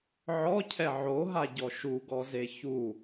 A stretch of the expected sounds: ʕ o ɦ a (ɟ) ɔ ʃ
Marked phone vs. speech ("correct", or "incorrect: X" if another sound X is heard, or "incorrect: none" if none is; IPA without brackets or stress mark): correct